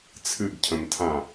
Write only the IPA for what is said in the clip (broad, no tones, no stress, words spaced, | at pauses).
t͡sʰɨɡcʰə̃mtʰã